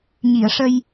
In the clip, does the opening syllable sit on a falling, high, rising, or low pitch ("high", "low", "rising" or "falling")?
low